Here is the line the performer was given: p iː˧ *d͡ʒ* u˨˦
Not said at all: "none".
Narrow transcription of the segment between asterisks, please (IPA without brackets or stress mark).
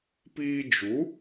d͡ʒ